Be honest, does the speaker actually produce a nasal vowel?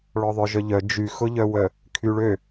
no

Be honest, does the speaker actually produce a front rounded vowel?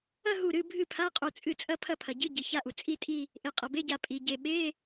no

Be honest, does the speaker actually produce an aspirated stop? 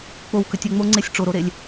no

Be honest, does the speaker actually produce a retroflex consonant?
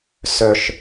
no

